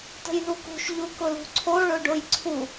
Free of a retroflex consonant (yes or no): no